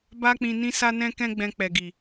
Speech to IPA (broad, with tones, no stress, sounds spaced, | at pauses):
b a˦ k͡p ĩ˧ n ĩ˦ s a˦ n ɛ̃˦ k ɛ̃˦ ɡ͡b ɛ̃˧ k͡p ɛ˨ ɡ i˨